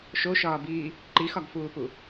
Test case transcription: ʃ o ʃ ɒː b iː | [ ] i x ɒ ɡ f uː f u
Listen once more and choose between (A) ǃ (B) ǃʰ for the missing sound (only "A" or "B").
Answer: A